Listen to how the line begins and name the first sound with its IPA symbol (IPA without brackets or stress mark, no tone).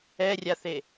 ɛ